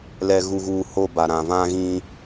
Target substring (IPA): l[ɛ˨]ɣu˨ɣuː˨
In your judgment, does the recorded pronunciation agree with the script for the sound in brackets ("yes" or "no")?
yes